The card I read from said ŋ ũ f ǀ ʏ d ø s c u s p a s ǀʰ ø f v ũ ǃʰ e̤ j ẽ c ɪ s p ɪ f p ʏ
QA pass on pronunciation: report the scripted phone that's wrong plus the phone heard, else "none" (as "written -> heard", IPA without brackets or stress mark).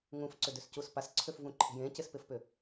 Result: none